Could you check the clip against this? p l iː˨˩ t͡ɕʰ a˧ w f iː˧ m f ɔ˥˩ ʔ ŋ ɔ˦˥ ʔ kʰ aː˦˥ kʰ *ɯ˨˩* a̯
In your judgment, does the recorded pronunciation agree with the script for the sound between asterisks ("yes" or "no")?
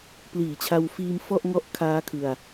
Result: no